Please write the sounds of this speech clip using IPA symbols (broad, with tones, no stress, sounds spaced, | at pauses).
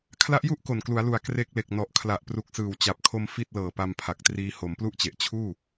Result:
kʰ l a˦˥ ʔ j u˥˩ ʔ k o˨˩ n k l u˩˦ a̯ l u˩˦ a̯ k r e˦˥ k̚ l e˨˩ k̚ n ɔ˨˩ ʔ kʰ l a˨˩ ʔ p r u˨˩ k̚ s ɯː˨˩ w t͡ɕ a˨˩ p̚ kʰ o˧ m f i˥˩ t̚ l ɤː˨˩ p a˧ m pʰ a˨˩ k̚ t r iː˧ h o˩˦ m p l u˥˩ ʔ t͡ɕ e˨˩ ʔ t͡ɕʰ uː˥˩